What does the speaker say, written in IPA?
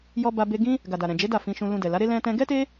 j ɔ˧ b a˧ b e˧ ɡ ĩ˦ | ɡ a˨ d a˨ ɾ ɛ̃˨ d͡ʒ e˨˦ d a˦˨ f ĩ˧ ʃ ũ˧ l ũ˧ d ɛ˨ l a˨˦ ɾ e˦ l ɛ̃˧ t ɛ̃˧ ɡ ɛ˦ t e˦

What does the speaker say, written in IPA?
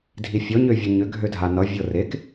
dʱ i fʲ ɔ ɲ ø vʲ ɤ ɲ ʏ ɡʱ ø dʱ a n ʌ vʲ ɤ r e k

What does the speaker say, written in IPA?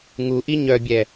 ŋ u ʔ i ɲ œ bʲ ɛ

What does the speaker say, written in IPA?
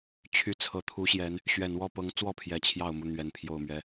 t͡ɕʰ y˨˦ t͡sʰ ɤ˨˩ t̪ʰ u˨˦ ɕ j ɛ˨˦ n | ɕ ɥ ɛ˨˩ n w ɔ˥˨ p ɤ˨˦ ŋ t͡s w ɔ˥˨ pʰ j ɛ˨˦ t͡ɕʰ j ɑ˥˨ ʊ̯ m u˥˨ n̪ ɥ ɛ˨˩ n pʰ j o˥˨ ʊ̯ m ɥ ɛ˦

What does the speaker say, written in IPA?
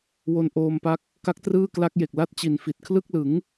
w o˧ n ʔ oː˧ m p a˦˥ k̚ | k a˦˥ k̚ t r ɯː˥˩ k l a˦˥ k̚ j e˨˩ k̚ l a˥˩ t̚ t͡ɕ i˨˩ n f i˨˩ t̚ kʰ l ɯ˥˩ k̚ l ɯ˩˦ ŋ

